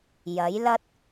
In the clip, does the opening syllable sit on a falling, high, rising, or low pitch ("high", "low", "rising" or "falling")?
rising